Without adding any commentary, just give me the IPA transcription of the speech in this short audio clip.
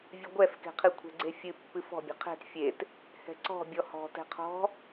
vʲ ɨ ɡʷ ɛ f k ɛ̤ qʰ ɨ kʷʰ ɛ̤ ɡ͡ǀ e fʲ ɨ pː ɨ f ɔ̤ bʲ ɛ̤ qʰ ɛ̤ t fʲ e t | h ɛ̤ ǀ ɔ̤ bʲ ɔ h ɔ̤ t ɛ̤ qʰ ɔ̤

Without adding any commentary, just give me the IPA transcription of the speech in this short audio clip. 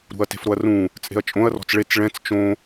ɾ ṳ ɐ̯ t e̤ f ɾ o ɐ̯ r ũ | t͡sʼ e̤ ɐ̯ t͡ʃʼ õ ɐ̯ r ɔ̤ t͡s ɭ e t͡s ɭ ɛ̃ t͡s t͡ʃ õ

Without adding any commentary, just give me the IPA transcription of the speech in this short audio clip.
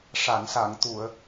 ʂ a˨˩˨ n s a˨˩˨ ŋ t̪ u˨˩˨ ə̯

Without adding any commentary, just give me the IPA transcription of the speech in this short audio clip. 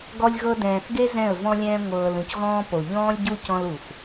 ɡ ɔ˦ lʲ ɣ ɤ˦ d ɛ̃ː˨ θ ɡ e˦ z ɛ̃˦˨ ə̯ v ɔ̃˦ lʲ ɛ̃ː˦ ŋʷ ɤː˧ l ũ˨ c ɣ ɔ̃ː˦ p o˨ ʎ ɔ̃ː˦ lʲ ɟ u˦ c ɔ̃˦ l u˨ xʷ

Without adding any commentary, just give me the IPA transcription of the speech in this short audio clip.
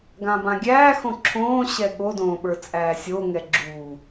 ɡ ã b ã ɡʲ æː x õ ǁʰ õː ɕ ɛ ɠ o d õː ɓ ə˞ t͡sʼ æː sʲ o ŋ ɛ ɡ͡ǁ uː

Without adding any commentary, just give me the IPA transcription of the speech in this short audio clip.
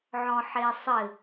ʕ ɔ̃ ħ e sˤ ɘ

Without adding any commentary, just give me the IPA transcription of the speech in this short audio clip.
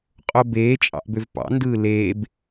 qʼ o b eː t͡ʃʼ ɑ̰ ʔ b ø v p ɑ̰ n d ɯː l eː b

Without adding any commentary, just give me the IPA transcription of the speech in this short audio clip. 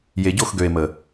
j e˨ ɟ o˦˨ x ɡ ø˨ e̯ m ə˨

